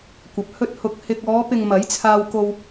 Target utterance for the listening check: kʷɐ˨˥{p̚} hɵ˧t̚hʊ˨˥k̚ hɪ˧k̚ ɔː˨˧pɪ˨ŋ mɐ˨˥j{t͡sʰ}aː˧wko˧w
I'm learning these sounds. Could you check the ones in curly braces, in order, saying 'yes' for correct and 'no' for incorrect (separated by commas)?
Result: yes, yes